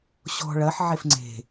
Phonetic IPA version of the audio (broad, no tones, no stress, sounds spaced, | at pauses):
ɕ ɔ̤ ɭ ɐ ħ ʕ e f ŋ͡ǀ e̤